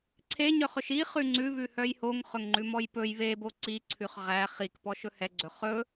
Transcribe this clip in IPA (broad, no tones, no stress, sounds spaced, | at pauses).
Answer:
ǀʰ e ɲ œ χ ɵ ʃ i χ ʉ ŋ͡ǀ ʉ β ʉ h œ j h o ŋ χ ɵ ŋ ŋ͡ǃ ʉ m ɔ j p ɵ j β e b o ǀ i ǀʰ ʉ χ ʁ æ χ i k p ɔ ʃ ɵ h ɛ ɡ͡ǀ ɵ χ ɵ